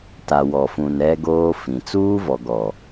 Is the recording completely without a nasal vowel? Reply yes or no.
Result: no